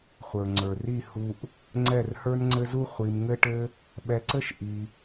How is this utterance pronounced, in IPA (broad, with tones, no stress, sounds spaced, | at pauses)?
χʷ ə˞˨ ŋ͡ǀ ə˞˨ r i˦˨ h u˧ ʔ | ŋ͡ǀ ɛ˦˨ r h ə˞˦ n ŋ͡ǀ ɘ˦ z u˦ χʷ i˧ m ŋ ɘ˦ ʈ ɘ˦ | ɓ ɛ˧ ǀ ɘ˦ ʃ ʔ i˧